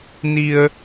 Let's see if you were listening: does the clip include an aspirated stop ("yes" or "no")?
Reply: no